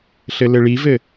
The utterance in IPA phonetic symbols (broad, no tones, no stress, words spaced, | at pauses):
ɬɘlɘɭivɘ